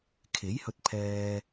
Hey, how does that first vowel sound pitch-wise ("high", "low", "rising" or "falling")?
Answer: rising